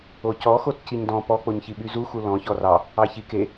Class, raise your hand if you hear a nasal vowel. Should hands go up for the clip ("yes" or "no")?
yes